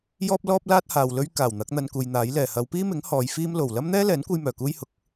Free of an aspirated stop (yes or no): yes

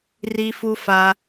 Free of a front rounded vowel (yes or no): yes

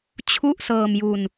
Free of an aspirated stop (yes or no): no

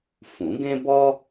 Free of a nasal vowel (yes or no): no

